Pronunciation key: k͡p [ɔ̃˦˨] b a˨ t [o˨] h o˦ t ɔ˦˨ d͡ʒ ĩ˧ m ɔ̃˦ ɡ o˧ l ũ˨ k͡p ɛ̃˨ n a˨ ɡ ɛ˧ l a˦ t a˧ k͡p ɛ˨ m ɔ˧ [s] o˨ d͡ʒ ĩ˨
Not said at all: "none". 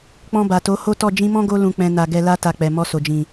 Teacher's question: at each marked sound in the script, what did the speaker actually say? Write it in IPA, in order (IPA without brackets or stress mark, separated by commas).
ɔ̃˧, o˨˦, s